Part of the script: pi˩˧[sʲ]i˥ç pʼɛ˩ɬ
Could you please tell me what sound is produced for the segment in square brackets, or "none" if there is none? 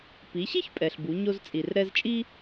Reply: ɕ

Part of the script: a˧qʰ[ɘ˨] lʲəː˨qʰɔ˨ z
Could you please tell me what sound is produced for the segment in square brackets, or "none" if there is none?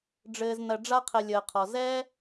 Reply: ɘ˨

